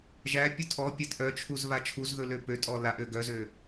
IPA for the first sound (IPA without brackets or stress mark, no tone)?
ʒ